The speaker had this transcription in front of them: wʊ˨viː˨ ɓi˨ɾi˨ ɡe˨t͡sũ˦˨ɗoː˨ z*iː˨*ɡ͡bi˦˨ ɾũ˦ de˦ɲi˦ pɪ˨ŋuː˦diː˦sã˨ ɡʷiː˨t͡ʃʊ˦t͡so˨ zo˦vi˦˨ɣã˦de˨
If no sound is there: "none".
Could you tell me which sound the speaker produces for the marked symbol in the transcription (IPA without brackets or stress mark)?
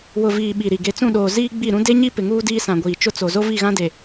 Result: iː˦